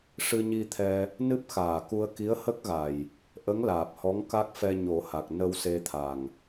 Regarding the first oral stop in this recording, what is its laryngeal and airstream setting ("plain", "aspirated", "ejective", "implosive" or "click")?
aspirated